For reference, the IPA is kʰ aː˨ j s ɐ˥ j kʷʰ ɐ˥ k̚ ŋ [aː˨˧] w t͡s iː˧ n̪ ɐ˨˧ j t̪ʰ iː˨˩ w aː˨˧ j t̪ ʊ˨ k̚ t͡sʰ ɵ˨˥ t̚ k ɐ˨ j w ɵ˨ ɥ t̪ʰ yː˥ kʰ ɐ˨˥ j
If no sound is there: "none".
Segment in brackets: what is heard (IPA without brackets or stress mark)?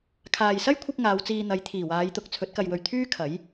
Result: aː˨˧